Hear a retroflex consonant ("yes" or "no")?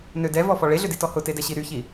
yes